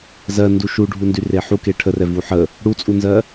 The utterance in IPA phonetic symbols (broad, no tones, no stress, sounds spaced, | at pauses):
z ɜ n d u ʃ u ɖʱ u n d y r e ħ u k e ʈʰ ə r ɛ v u ħ ə | ɽ u t͡sʼ u n z ɜ